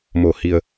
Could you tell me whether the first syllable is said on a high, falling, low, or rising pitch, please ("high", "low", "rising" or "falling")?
low